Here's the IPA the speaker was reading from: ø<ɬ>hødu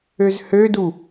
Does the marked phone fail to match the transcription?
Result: yes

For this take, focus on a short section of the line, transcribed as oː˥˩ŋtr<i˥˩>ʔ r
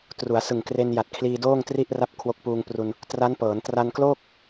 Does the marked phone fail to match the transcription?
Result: no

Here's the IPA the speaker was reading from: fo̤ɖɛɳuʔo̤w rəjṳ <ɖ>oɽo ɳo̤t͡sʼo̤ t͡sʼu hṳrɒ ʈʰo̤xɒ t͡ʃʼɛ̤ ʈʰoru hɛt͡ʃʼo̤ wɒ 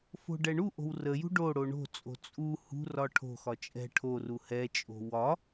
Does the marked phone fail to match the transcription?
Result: no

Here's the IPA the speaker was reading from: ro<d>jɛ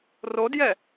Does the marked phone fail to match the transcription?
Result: no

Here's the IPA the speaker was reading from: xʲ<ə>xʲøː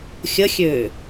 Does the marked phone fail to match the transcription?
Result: no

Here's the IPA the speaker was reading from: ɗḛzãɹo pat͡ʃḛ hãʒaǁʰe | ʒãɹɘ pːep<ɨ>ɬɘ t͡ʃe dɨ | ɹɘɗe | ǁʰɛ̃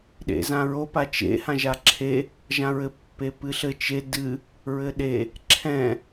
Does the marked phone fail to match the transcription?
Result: no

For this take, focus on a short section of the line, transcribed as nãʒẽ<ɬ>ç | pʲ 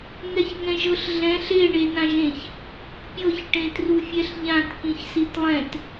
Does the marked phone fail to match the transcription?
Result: yes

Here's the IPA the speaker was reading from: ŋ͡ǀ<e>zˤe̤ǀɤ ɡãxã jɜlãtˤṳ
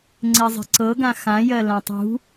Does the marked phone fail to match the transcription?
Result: no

